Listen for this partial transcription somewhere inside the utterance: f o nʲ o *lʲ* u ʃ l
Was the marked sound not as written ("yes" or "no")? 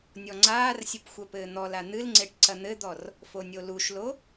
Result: yes